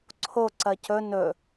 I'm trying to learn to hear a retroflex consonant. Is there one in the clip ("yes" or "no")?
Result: no